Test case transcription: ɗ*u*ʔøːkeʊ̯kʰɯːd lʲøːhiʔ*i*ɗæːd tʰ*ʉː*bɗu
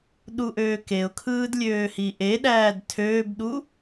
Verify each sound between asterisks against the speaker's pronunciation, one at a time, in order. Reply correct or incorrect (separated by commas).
correct, incorrect, incorrect